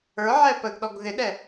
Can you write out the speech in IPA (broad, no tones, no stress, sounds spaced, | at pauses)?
ə˞ ʕ ɛ p ə ɡ ɗ ɔ ɡ ð ɪ ɗ ɛ